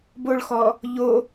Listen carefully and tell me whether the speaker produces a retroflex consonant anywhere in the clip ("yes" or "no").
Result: yes